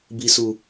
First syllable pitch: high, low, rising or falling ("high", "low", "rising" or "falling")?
low